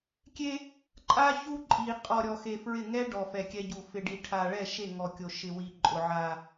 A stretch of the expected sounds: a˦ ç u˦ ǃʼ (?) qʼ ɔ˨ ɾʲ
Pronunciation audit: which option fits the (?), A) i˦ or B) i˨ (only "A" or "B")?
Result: B